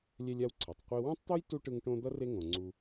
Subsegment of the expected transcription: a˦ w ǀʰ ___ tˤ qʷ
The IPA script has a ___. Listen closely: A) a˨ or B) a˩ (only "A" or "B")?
B